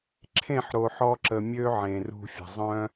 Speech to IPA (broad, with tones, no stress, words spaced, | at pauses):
ǁʰẽ˦˨ħɾo˨ħɔ˧ǁə˨ mʲø˦ ʕẽ˨rṳ˧fʲə̤˨ zˤœ̃˦